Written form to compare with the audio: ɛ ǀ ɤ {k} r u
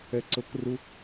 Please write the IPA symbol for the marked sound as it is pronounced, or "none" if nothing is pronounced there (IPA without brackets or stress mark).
k